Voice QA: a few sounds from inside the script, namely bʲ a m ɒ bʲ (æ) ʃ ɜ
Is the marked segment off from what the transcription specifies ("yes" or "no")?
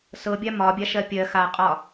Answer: yes